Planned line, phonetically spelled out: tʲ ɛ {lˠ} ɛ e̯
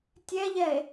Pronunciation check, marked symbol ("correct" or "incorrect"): incorrect